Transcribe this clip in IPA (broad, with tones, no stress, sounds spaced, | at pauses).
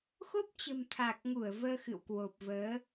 x o˦˥ p̚ t͡ɕ ə̤˨˩ m t̪ʰ a˨˩ k̚ ŋ u˧˩ ə̯ v əː˧ x ɨ̰˧˨ w k w o˨˩ p̚ v əː˨˦